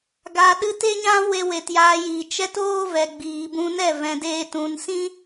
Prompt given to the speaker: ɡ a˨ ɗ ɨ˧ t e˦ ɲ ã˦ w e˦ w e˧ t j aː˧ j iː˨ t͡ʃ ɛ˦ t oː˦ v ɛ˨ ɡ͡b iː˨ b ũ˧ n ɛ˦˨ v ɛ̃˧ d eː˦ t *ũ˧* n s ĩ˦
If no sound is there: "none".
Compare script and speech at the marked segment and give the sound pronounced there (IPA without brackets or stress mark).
ũ˧